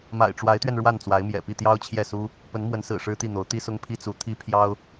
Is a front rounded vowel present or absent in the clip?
absent